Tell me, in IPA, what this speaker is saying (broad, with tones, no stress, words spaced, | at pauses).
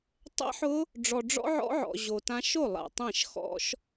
tˤɛ̰˦˥ħʊ˦˥ | ɖ͡ʐɔ˨ɖ͡ʐɔ̰˦˥ ʕɔ̰˦˥ʕɔ̰˨ ʑo˨tã˦˥ ʃo˥˩ lˠa̰˨tˤɛ̃˥˩ʃ xɔ̰˦˥ʃ